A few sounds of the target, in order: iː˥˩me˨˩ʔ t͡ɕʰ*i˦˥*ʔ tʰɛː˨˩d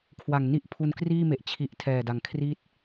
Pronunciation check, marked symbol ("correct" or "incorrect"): incorrect